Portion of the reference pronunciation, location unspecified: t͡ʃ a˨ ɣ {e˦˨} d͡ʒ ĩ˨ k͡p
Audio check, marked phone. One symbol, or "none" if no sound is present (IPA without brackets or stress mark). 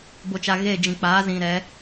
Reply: e˦˨